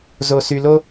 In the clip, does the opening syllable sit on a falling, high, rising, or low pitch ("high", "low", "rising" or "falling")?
low